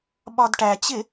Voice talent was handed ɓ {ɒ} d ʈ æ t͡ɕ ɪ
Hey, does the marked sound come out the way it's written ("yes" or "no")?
yes